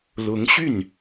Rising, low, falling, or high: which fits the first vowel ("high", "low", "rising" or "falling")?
rising